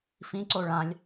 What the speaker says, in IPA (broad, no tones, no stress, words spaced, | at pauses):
fĩǀo ɭãlʲ